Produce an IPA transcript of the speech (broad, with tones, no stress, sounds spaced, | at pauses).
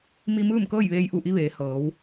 m i˧ m ɯː˥˨ m k ɤː˥˨ j ʋ eː˧ j ʔ u˧˩ ʔ i˧ ʋ eː˩˧ h ɤː˩˧ w